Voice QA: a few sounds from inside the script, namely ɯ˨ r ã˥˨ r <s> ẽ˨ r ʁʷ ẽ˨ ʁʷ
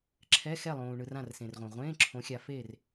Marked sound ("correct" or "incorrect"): correct